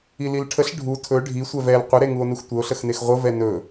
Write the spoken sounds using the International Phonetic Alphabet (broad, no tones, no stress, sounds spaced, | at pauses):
i l i l ʈʰ ə ɬ ɖʱ u tʰ ɵ ɖʱ i sʷ ɛ v ɛ l qʷ ə ɾ e ŋ u o̯ n u x tʷ ə o̯ ɬ ə x n e x ʁʷ ə v ɛ n ɵ